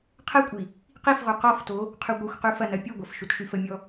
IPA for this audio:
qʰ ɛ kʷʼ i | q i f ʁ u q ɔ f t o | qʰ y ɡʷ i xʷ q y f ɐ n ɐ pʲ u ɡʷ ɐ f ʃ u t ʃ y f ə mʲ ɔ

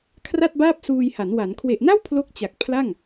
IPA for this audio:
kʰ r a˥˩ t̚ b aː˥˩ p̚ s uː˧ j h a˩˦ n w a˩˦ n kʰ w e˨˩ ʔ n a˥˩ w pʰ l o˥˩ k̚ t͡ɕ a˨˩ k̚ pʰ l a˥˩ ŋ

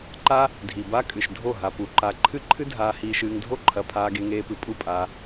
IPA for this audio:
ǃ a˦ | dʱ i˨ b a˦ kʼ ɨ˨ ʃ dʱ o˦˨ ɦ a˧ p u˨ ǃ a˨ ǃʰ ɨ˦ ǃʰ ɨ˦ dʱ aː˧ h iː˧ ʃ ɨː˧ ŋ dʱ o˦ ǃʰ ɐ˧ pʰ aː˧ ɡ e˧ ŋ eː˧ p ɨ˨ pʼ u˦˨ pʼ aː˧

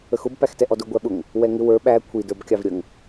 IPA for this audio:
ə x ʊ b p æ x t ɛ ʔ ɔ d ʊ ɡʷ æ ɓ ʊ ŋ | w ɛ ŋ ɪ w ə˞ ɓ æ kʷʰ i d ə˞ b kʲ ɑ v ɾʲ ə ŋ

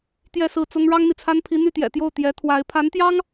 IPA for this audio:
t̪ j ɛ˥˧ s ɹ̩˥˩ t͡s ʊ˥ ŋ ɻ ɑ˥ ŋ n̪ i˨ t͡sʰ a˥ n pʰ i˧˥ n̪ y˥˩ t̪ j ɛ̰˨˩ t̪ j o˥˩ ʊ̯ t̪ j ɛ˧˥ t̪ʰ w a˧˥ ɪ̯ pʰ a˧˥ n t̪ j ɑ˥ ŋ

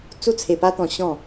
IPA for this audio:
t͡s u˥˧ t͡sʰ e˧ p a˦ t̪ ɔ̃˧ ɕ ɔ̃˥˧

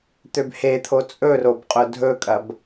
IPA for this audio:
t̪ ø b h e t̪ʰ o t͡sʼ ɵ r o b qʼ ʊ dʱ ɵ kʼ ɐ b

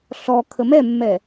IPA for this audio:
ɬ ɔ kʰ ə m ɛ mː ɛ

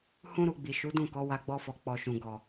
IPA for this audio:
h ũ˦ ɾ u˧ ɡ͡b i˨ ʃ u˨˦ d ũ˦˨ k ɔ˨˦ w a˧ ɡ͡b ɔ˧ f ɔ˨ k͡p ɔ˨ ʃ ũ˨ ɡ ɔ˨

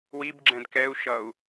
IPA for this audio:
w i b ɡ͡ǁ ɛ̃ d k ɛ u̯ ʃ ʌ u̯

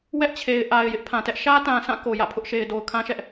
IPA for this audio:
w ɛ˦ ʔ t͡ɕʰ e˨ ɪ̯ ʔ a˨ ɪ̯ j ɪ˦ ʔ pʰ ã˨ t ɛ˦ ʔ ʃ ä˦ t ã˨ s ã˦˨ k o˨ j ä̰˦˨ pʰ ʊ˦ ʔ ʃ e˨ ɪ̯ d o˨ ʊ̯ kʰ ã˦ ʃ ɛ˦ ʔ

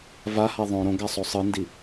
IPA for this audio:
v a h a ðˤ õ ɾ õ ɡ a sˤ o sˤ ɯ n d i

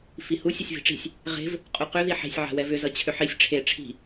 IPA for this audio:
f i h u sʲ ʌ sʲ v i̤ ʈ͡ʂ i̤ sʲ | ʁ e̤ v | qʼ u q ʏ ð i ħ e̤ sʲ ʕ a̤ w ɛ v ʏ z ʌ t͡ɕʰ ʏ ħ i sʲ ʈ͡ʂʰ e ʈ͡ʂʰ i̤

